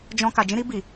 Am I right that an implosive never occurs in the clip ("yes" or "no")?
yes